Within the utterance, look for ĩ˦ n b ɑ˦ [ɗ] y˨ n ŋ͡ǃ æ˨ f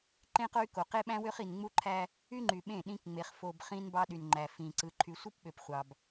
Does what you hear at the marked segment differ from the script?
no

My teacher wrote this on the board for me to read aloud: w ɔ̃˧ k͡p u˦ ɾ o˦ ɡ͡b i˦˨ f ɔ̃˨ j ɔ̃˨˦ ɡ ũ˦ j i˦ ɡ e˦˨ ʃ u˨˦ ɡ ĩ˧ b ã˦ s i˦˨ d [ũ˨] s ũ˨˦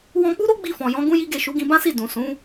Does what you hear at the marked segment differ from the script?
no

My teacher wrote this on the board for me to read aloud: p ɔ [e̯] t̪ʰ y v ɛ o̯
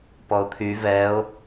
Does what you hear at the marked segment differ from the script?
yes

